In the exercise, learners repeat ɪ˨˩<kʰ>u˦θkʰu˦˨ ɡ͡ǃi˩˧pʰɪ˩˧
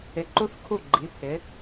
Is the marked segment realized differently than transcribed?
yes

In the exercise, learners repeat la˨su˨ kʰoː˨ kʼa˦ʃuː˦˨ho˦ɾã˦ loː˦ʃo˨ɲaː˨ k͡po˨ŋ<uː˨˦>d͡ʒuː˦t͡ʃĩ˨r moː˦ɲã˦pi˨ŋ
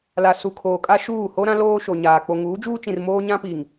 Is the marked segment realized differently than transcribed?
no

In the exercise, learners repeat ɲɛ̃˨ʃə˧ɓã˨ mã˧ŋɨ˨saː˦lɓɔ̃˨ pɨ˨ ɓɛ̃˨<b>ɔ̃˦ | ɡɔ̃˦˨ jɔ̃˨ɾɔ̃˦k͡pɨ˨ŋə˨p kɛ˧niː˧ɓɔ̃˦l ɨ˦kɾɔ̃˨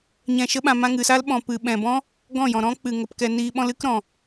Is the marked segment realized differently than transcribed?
no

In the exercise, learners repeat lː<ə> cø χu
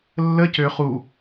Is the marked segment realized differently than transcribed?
no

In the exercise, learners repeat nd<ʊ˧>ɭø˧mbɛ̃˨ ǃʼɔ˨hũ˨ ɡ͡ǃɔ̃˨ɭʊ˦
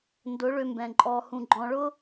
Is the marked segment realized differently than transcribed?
yes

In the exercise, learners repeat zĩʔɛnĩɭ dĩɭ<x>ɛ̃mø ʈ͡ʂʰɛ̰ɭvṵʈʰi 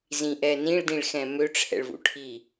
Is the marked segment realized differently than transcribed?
no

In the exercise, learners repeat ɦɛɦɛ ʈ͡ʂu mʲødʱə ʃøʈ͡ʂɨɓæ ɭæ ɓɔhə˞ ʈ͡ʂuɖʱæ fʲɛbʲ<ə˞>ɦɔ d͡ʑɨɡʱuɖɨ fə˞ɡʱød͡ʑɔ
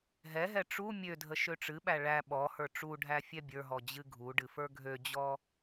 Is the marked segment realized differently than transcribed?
no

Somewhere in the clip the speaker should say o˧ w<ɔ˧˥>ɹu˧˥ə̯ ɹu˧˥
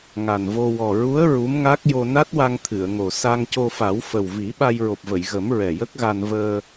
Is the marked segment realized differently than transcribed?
yes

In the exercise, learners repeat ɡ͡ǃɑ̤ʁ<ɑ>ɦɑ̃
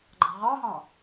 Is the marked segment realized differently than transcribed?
no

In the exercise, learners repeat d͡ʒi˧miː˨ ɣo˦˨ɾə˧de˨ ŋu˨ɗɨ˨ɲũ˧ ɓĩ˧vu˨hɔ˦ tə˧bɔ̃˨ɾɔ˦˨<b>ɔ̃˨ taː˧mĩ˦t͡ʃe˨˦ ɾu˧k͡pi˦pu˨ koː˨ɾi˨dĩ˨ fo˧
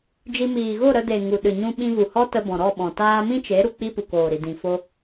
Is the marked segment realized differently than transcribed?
yes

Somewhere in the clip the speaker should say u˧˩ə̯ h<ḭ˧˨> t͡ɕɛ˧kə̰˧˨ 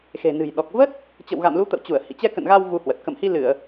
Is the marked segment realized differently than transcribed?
no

